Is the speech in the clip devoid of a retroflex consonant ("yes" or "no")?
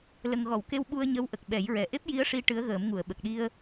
no